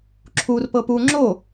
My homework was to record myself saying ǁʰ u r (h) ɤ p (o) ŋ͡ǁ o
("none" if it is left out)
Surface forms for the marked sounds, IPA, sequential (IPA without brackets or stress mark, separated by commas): p, u